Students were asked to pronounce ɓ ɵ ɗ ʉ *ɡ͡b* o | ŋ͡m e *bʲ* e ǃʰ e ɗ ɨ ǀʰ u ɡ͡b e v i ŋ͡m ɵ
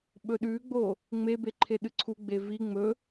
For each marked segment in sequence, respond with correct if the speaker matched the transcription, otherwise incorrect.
correct, incorrect: b

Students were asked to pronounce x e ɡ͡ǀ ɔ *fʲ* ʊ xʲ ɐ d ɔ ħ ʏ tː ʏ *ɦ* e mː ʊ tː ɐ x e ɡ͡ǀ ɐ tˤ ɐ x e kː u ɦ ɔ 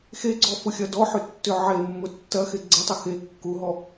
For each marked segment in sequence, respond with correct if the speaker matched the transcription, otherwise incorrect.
incorrect: f, incorrect: ʕ

